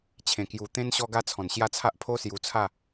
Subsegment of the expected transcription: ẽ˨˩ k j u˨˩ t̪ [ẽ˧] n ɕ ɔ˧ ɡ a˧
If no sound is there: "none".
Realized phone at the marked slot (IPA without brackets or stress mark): ẽ˧